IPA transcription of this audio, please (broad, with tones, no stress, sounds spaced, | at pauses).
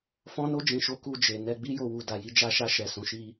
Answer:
f ɔ̃˧ n o˧ d͡ʒ ĩ˨ ʃ o˨˦ k u˧ d͡ʒ e˨ n ɛ˧ ɡ͡b i˦ j o˧ w u˧ d a˨ j i˨˦ d͡ʒ a˧ ʃ a˧ ʃ ɛ˨ s ũ˨˦ ʃ i˦